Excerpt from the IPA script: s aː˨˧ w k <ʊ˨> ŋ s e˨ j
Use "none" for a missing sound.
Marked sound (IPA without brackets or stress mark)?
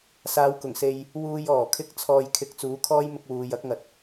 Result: ʊ˨˩